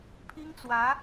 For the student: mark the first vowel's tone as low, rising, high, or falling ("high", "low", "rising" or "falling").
high